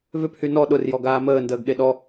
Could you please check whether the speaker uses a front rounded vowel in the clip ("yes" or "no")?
yes